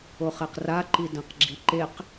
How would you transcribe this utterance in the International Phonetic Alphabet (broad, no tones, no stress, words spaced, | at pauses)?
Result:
oχɛqra ǃidɐ̃qɡ͡ǁiǃeq